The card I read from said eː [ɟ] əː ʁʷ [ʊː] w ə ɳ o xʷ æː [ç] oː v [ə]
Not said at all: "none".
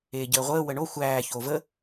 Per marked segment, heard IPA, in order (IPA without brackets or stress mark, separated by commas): ɟ, əː, ç, ə